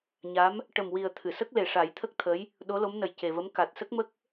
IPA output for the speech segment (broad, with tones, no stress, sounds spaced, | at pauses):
ɲ a˧˥ m | ʈ ə˨˩ m w i˨˩ ə̯ t̪ʰ ɨ˨˩˨ s ə˦˥ k̚ l e˨˩ ʂ a˨˩˦ j t̪ʰ ə˦˥ k̚ t̪ʰ ə˧˥ j | ɗ o˧˥ l o˧˥ m n ə˨˩ j c e˨˩ v ə˧˥ m k a˨˩ t̚ s ə˦˥ k̚ m ə˦˥ k̚